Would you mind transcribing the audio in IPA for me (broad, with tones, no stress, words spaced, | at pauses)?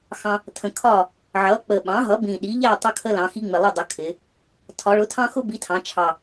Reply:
xɑ̃˦ | tʰə̃˨˩ kʰɒ˥˨ | ʕʌ˩˥k͡pə˨˩ ɓɑ̃˩˥ɦʌ˩˥bĩ˨˩ ɗi˩˥ʎæ˥˨ tˤʌ˦kʰə˦lɑ̃˩˧ xi˦ŋ͡mɪ˨˩lˠɪ˥˨dˤə˩˥ kʰɪ˩˧ | tʰɒ˩˧ɭʊ˩˥tʰɑ̃˦xʊ˦ bi˩˥tʰɑ̃˩˧t͡ʃʰɑ˨˩